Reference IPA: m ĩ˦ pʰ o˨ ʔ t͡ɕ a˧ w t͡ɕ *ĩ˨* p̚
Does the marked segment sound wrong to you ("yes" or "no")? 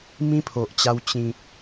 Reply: no